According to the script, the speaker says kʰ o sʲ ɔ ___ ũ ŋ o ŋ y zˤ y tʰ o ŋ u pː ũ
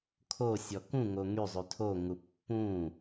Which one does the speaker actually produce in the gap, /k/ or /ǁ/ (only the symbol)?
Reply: k